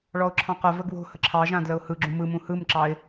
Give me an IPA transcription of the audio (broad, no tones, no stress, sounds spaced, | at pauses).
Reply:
ɭ ɔ ʊ̯ ǁʰ ɑ̃ q ə v ə ɡ w o̤ h ə ǁʰ ɑ ʒ ã d l ə ʊ̯ h ɯ ɡ͡ǁ ũ m ɯ m ũ h ɯ m ǁ ɑ ɪ̯